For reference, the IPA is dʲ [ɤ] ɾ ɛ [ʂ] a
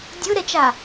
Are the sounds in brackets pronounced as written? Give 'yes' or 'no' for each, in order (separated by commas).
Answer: yes, no